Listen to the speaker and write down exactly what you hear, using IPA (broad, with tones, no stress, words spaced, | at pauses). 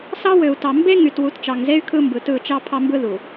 sɑ˦wø˨u̯tɑ˨ mbe˦ŋy˨t wu˨˦tt͡ʃɑ˨ŋze˦y̯ kʰɯ˦mbɯ˨ tɯ˦˨t͡ʃɑ˦ pʰɑ˦mbɯ˦ðu˨